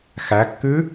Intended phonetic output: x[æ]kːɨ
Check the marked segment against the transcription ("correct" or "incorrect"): correct